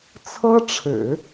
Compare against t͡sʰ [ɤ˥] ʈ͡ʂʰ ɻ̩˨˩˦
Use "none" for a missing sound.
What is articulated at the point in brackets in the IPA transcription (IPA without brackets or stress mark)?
ɤ˥